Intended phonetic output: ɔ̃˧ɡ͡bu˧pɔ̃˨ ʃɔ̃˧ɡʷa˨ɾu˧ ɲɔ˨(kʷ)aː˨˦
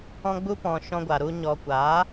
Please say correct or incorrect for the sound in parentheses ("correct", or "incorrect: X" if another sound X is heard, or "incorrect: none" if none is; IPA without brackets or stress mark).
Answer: correct